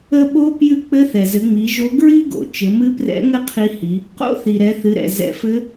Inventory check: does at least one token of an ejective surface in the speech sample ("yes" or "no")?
no